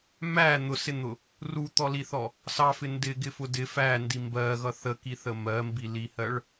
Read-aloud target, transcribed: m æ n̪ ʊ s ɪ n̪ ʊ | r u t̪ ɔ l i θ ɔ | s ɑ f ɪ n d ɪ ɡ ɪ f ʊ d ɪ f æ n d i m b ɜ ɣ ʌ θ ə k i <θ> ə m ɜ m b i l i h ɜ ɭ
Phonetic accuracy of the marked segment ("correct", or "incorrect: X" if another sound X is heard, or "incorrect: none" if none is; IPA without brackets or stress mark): correct